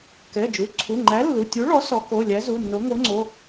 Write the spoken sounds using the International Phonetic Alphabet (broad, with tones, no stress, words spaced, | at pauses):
kɛ˩˧˩d͡ʒu˩˧˩ ǀʰu˩˧˩ŋ͡ǃæ˨˥ lːu˩˧˩tʲu˨˥ɭɔ˨˥ sɔ˨˥ ko˩˧˩ lʲæ˨˥zu˩˧˩nːo˨˥ ŋo˨˥ŋ͡ǀo˩˧˩